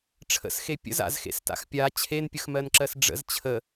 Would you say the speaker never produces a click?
no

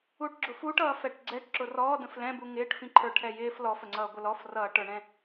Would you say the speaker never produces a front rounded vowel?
yes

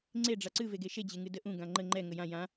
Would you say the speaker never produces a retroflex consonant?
no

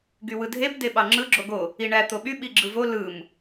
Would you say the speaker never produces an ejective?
yes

